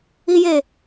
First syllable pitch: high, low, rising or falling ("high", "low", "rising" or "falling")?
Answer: high